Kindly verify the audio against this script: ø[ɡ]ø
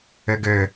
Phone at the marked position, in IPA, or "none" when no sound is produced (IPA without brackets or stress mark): ɡ